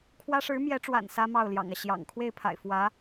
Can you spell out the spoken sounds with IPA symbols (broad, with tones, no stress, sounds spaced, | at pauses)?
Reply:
kʰ w ä˥ ʂ ɻ̩˧˥ m j ɛ˧˥ ʈ͡ʂ w a̰˨˩ n s ä˥ m ɑ˥˩ ʊ̯ l j ɑ̰˨˩ ŋ ä˦ ɕ j ɑ̰˨˩ ŋ kʰ w e˥˩ ɪ̯ pʰ a̰˨˩ ɪ̯ f w ä˧˥